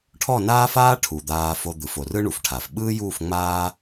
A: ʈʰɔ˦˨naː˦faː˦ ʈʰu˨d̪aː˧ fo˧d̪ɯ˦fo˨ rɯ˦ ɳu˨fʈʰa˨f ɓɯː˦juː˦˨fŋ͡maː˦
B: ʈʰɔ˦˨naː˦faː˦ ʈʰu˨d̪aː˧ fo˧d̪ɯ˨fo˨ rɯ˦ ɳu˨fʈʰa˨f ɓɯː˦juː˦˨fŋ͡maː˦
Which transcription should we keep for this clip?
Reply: B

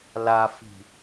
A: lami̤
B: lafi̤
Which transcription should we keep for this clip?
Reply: B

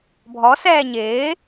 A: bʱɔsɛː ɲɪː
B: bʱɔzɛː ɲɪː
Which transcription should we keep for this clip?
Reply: A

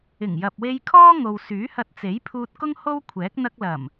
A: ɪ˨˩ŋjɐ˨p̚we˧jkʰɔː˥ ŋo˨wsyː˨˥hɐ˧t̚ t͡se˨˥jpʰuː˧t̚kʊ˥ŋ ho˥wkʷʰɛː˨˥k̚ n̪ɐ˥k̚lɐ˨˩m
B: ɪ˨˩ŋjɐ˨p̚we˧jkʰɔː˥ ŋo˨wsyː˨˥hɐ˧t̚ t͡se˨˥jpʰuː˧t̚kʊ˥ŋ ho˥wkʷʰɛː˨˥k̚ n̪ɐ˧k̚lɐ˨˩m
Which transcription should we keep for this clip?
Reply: B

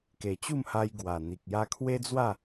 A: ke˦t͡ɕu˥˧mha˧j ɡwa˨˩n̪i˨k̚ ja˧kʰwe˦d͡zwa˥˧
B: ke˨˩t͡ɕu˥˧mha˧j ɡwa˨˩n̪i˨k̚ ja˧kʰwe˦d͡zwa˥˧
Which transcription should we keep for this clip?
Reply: B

